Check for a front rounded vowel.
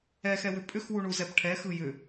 present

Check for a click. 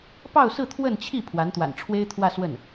absent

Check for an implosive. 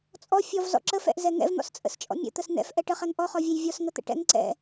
absent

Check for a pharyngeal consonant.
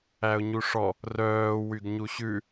absent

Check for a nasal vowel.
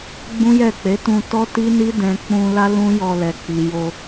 present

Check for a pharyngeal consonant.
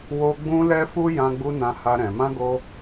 absent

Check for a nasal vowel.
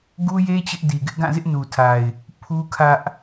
present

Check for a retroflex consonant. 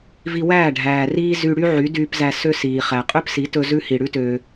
present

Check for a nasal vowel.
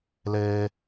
absent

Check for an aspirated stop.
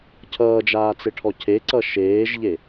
present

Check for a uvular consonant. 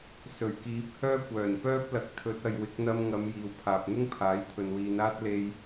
absent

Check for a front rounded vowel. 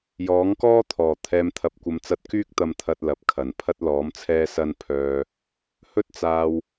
present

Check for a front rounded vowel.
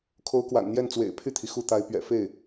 present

